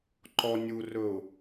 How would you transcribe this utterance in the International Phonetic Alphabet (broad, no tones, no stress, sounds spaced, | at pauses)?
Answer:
ǃ ɔ nʲ u r ɵ ʊ̯